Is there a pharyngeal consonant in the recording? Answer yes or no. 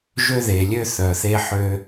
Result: yes